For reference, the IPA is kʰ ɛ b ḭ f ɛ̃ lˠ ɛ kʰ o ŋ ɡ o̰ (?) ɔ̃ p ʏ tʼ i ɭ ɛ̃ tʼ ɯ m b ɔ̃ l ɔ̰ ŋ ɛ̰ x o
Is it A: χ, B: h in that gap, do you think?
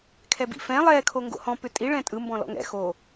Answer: B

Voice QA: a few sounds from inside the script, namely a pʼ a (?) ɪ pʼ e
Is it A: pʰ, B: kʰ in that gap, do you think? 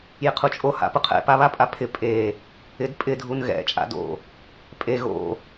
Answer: A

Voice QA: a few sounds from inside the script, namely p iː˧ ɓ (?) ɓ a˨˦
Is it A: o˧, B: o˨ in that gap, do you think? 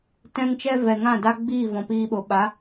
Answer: B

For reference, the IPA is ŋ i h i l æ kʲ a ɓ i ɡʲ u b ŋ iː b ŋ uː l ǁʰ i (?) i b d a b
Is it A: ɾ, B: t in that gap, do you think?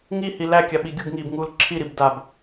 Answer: A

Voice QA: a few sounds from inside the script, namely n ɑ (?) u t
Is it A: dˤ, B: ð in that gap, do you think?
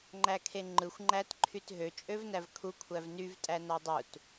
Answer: A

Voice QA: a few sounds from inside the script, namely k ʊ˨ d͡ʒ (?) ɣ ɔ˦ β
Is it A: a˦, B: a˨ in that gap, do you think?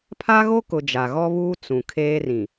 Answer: B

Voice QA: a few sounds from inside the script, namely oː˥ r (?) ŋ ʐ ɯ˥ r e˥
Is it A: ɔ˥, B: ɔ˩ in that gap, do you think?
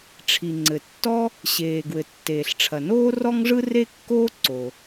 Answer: A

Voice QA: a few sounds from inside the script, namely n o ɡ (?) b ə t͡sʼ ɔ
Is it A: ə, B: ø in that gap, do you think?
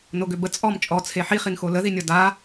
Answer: B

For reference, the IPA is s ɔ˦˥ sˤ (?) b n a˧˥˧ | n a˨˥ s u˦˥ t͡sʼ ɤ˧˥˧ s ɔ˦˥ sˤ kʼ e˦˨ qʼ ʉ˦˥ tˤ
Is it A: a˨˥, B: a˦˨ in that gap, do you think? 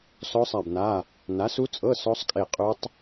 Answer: B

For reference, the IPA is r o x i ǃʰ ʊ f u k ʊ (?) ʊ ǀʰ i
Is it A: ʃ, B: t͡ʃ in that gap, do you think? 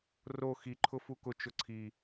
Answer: B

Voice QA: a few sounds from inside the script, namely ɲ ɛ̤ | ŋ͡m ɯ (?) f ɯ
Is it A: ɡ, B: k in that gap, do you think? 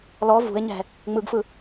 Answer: A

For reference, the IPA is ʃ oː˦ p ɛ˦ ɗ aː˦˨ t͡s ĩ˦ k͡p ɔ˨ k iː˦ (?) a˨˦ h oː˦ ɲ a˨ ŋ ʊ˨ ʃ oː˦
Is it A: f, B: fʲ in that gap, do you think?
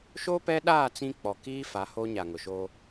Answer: A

